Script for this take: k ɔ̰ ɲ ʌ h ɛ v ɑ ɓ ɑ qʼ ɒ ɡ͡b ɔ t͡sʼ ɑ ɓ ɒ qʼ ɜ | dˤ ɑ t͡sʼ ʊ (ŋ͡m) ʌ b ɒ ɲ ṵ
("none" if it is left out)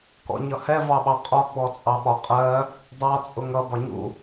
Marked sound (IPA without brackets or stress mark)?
ŋ